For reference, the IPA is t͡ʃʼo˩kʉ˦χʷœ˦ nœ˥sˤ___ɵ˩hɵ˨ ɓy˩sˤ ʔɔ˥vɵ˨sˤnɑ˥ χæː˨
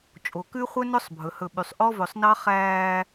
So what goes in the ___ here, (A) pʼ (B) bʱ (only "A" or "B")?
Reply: B